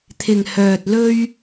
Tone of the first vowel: low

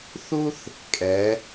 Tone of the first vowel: high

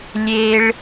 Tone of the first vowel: high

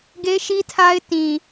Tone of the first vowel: high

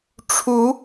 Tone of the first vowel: rising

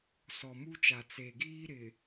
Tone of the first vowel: low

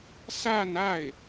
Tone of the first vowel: falling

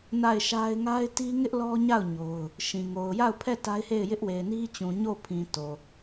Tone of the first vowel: falling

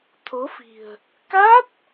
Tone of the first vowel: rising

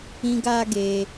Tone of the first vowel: high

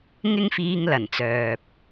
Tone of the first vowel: high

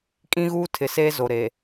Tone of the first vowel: high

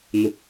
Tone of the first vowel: rising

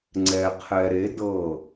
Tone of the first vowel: low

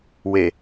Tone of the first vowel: low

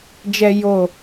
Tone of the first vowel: low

